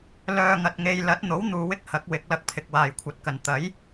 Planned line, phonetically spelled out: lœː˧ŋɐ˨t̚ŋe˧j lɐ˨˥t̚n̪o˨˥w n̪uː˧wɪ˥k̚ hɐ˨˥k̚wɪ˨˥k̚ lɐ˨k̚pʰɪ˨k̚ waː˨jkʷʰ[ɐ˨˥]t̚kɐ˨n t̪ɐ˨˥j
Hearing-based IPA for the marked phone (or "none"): ɐ˨˥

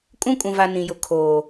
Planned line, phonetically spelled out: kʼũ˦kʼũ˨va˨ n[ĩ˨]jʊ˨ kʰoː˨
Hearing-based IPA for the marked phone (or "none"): ĩ˨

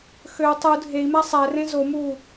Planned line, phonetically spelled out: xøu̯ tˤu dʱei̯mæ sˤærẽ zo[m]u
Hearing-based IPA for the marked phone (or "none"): m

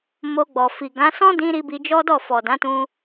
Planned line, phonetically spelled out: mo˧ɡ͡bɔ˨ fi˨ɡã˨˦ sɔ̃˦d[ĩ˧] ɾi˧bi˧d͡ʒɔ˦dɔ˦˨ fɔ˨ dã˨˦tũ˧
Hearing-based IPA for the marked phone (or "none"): ĩ˧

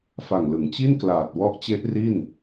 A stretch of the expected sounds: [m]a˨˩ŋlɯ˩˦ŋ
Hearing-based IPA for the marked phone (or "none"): f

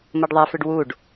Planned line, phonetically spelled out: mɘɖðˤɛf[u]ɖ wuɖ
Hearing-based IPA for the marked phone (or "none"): ʏ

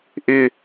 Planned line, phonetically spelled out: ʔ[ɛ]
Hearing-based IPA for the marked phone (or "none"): ɪ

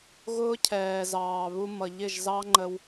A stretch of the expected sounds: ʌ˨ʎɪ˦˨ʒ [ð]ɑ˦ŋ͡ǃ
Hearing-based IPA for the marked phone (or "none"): z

